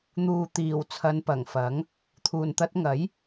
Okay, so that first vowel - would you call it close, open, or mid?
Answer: close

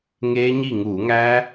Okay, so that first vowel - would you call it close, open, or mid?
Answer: mid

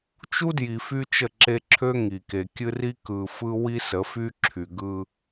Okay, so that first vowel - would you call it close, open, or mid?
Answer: close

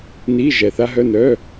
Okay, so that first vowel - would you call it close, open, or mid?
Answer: close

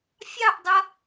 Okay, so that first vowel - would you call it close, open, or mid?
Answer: open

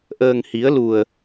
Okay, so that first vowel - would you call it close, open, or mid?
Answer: mid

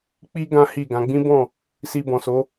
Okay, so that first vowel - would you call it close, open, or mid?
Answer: close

